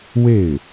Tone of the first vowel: falling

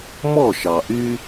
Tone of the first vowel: falling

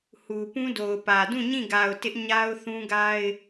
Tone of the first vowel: low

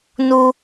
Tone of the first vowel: high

